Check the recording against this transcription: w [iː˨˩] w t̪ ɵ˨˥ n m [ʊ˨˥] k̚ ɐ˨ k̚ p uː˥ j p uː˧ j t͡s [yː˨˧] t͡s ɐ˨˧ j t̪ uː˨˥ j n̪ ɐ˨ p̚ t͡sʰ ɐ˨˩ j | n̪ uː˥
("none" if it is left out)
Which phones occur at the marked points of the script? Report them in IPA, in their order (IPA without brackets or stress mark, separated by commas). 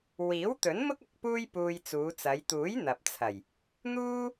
iː˨˥, ʊ˥, uː˨˧